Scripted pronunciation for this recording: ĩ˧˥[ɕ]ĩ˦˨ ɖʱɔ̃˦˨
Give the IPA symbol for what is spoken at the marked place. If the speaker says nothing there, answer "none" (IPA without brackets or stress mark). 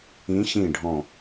ɕ